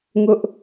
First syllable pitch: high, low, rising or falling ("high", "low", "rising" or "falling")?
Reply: high